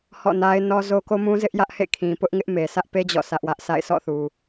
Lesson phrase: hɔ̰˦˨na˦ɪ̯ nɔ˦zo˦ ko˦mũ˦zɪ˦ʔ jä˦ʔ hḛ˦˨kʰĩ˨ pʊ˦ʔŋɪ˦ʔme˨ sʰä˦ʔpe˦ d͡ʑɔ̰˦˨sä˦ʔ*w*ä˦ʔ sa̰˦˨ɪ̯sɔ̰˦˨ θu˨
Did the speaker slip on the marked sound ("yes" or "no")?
no